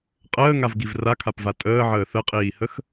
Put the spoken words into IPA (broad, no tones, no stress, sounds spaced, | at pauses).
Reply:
qʼ əː ŋ a v ɡ i v r a kʰ a p v a tʼ əː ʕ əː θ ə qʼ iː h ə x